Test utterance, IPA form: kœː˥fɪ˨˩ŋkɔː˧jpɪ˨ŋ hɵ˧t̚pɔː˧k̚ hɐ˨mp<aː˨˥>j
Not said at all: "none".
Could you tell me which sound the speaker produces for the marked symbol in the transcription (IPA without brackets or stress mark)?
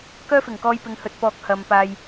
aː˨